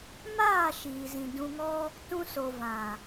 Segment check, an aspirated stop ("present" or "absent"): absent